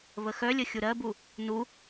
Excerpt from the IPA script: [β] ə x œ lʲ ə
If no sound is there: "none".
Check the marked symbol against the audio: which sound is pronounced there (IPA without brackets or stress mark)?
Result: β